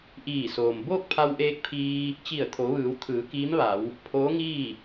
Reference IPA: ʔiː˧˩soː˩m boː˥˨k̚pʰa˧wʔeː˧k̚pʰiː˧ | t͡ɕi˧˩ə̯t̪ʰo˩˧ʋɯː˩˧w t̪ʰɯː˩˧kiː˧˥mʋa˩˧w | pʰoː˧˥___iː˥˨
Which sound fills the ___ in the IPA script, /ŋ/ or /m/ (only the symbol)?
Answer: ŋ